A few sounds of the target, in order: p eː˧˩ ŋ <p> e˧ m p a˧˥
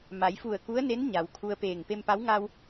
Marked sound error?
no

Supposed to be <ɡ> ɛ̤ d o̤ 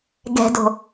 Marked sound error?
no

